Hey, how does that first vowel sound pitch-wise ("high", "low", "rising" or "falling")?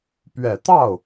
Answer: low